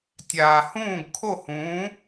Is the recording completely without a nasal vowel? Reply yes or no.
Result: no